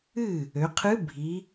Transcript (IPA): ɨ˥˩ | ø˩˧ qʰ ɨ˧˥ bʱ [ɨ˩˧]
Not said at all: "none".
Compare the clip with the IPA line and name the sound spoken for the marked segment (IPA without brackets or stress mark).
i˩˧